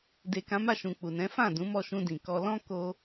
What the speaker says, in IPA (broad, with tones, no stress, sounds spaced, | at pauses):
d e˨ k ã˨˦ m a˦˨ ʃ ũ˨ k͡p u˨ n ɛ̃˨˦ f ã˦˨ d ũ˨˦ m ɔ˦˨ ʃ ũ˧ d ĩ˨ k ɔ˧ l ɔ̃˦ k o˧